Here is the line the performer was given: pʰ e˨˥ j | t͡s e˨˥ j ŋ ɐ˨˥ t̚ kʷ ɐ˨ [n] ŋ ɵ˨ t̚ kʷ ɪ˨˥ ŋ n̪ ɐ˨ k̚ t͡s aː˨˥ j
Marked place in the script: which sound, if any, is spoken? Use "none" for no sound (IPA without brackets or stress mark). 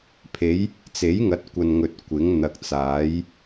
n